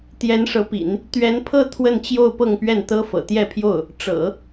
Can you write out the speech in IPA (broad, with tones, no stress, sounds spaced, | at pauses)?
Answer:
t̪ j ɛ˧˥ n ʂ ɤ˧˥ p ḭ˨˩˦ n | t̪ ɥ ɛ˧˥ n pʰ ɤ˥˧ t̪ʰ w ə˥˧ n t͡ɕ j o˥˧ ʊ̯ p ɤ˥˧ ŋ p ɥ ɛ˥˩ n t̪ ɤ˥ f ɤ̰˨˩ t̪ j ɛ˥˧ pʰ j o˥˩ ʊ̯ | ʈ͡ʂ ɤ̰˨˩˦